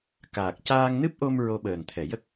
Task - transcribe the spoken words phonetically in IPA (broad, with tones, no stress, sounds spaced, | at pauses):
k aː˨˩ k̚ c aː˧ ŋ n ɨ˦˥ p̚ ʔ o˧ m ɹ o˧ ɓ əː˨˩ n t̪ʰ ɛ˨˩˨ j ə˦˥ k̚